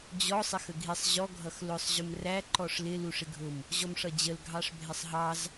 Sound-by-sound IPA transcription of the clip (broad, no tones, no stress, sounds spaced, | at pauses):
d͡ʑ ɔ sˤ ɪ x ə ɡʱ i sˤ ʑ ɔ ɡʱ ʌ x l ʊ sˤ ʑ ʊ m r æ ǃ ɔ ʂ l ɪ l u ʂ ɪ ɡʱ ʊ m | ʑ ɔ m ʂ ʌ d͡ʑ ə l ɡʱ ɑ ʂ bʱ ɪ sˤ ɦ ɑ z